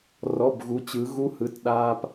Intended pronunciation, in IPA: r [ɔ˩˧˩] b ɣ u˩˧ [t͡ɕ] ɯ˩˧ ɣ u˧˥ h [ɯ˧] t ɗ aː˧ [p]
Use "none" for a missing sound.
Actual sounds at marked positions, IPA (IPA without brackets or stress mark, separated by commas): ɔ˩˧˩, t͡ɕ, ɯ˩˧˩, p